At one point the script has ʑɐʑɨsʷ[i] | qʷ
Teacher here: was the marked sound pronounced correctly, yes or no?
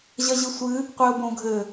no